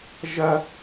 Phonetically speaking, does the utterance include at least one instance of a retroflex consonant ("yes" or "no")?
no